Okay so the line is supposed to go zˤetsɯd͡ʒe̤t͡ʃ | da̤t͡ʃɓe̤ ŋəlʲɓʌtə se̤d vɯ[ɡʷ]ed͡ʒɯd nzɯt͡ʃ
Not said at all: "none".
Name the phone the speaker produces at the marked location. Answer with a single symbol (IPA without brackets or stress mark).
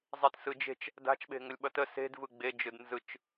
ɡ͡b